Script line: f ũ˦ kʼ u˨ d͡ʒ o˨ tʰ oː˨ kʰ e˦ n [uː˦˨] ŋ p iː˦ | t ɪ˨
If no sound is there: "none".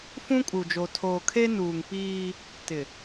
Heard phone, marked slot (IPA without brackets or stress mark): uː˨